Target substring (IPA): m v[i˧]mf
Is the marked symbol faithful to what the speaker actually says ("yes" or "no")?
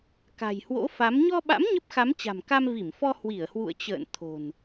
no